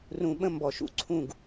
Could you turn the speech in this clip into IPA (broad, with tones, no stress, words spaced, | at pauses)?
rũ˨ɓə̃˦ mbɔ˨ʃṵ˦ ǀʰũ˦˨ɡ